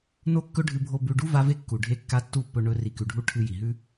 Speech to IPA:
no˦kːɵ˦ɖʱɨ˧bʱo˧ bʉ˧ɖu˦ va˦ve˦ kːu˨ɖʱe˧kːa˧ tːu˦˨pːɵ˧ɳɵ˧ ri˨kʉ˨ɖʱu˧ ʈʰɨ˧ ji˨ɦʉ˦

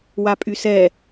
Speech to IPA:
wapʼysɛ

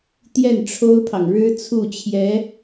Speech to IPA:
t̪jɛ˥˩nʈ͡ʂʰo˥ʊ̯pʰɑ˨ŋ ɻɻ̩˥t͡sʰu˥˩t͡ɕʰjɛ˧˥

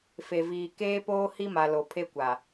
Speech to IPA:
fe˨viː˨ keː˦poː˦ hi˦ma˨ lo˨ pʰe˦kʷa˨

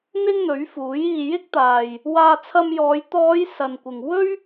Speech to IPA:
n̪ɪ˥ŋn̪ɵ˨˥ɥfuː˨˥j iː˨jɪ˥k̚t̪aː˨j | waː˧t͡sʰɐ˧mjɔː˨˧j t̪ɔː˨˧j sɐ˨nkʷɪ˨ŋ wɵ˥ɥ

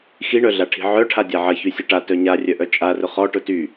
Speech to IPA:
xiɳœɮaʈʰi̤ ʕœʈʰa dʲaʕɐçy sʲʊʈa tœɲarʲœʔœ t͡ʃʼarʊ χɔ ʈʊty

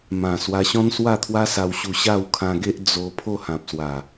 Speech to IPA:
mã˨˩ swa˧ɕɔ̃˦nswa˥˧t̪ʰwa˦ sa˧wɕu˧ ɕa˥˧wkʰã˧ɡe˦ʔ d͡zo˧ pʰo˥˧hã˨p̚swa˨˩

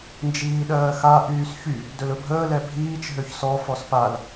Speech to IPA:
nd͡ʒiːɗɜːxa ʔyːsçy | dɵlɵbʱəː lɛbʱiːt͡ʃ ɦøçsɔ fɔspal

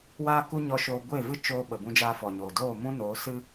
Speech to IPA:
waː˦ku˦ɲɔ˧ʃoː˧ ɡʷe˦˨vɨ˦ t͡ʃoː˧ɓə˨ bũ˧d͡ʒaː˧fɔ˨ɲoː˨ doː˦˨mũ˦ noː˨˦sɨ˦

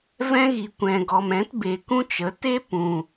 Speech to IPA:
vɛ̃˦ɣi˨kʷɛ̃˨ɡɔ˨m ɛ̃˨˦tbe˨kũ˦ t͡ʃə˨˦te˦pũ˨

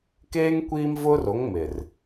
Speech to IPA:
keː˦ŋ kʷiː˦mvʊ˦ro˨˦ŋ mɪ˨r

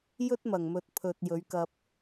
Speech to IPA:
jɵ˥t̚ mɐ˨˩ŋmɵ˨t̚ pʰɵ˨t̚jɵ˨˧ɥkɐ˧p̚

